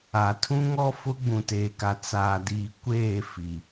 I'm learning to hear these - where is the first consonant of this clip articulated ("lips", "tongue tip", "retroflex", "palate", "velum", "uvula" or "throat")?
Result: tongue tip